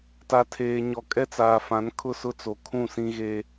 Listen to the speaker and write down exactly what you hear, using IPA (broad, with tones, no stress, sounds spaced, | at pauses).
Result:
t a˨ tʰ eː˨ ɲ ɔ˨ kʼ ɛ˦ t͡s aː˨ f ã˨˦ n kʰ ʊ˦˨ s ʊ˦ t͡s o˨ kʰ ũ˦˨ s ĩ˦ ɣ e˦